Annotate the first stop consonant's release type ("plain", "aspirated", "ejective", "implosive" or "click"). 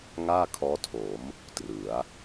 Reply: aspirated